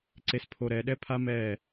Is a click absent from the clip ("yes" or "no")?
no